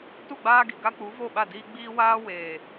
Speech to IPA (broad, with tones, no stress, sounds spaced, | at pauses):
t u˦˨ ɡ͡b aː˦ ɡ i˨ ɡ a˦ k͡p u˨˦ v o˦˨ ɓ a˦˨ d iː˦ ɡ͡b iː˦ w aː˦ w eː˨